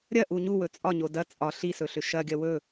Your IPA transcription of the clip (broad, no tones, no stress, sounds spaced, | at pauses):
ɾʲ ɐ ʔ u ɲ u w ɵ t͡sʼ ɒ ɲ o d ɐ t͡sʼ ɒ ɬ i s ɵ ɬ ʏ ʃ ɐ ɡʲ ɐ w ɵ